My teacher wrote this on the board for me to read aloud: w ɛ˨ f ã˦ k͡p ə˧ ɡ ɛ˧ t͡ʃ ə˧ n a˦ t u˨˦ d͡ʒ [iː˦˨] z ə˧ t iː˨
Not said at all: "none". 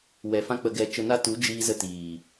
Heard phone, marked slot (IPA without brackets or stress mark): iː˧